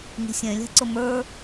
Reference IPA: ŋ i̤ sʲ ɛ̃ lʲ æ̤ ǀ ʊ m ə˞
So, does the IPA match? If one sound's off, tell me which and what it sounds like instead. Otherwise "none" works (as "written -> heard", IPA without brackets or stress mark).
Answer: none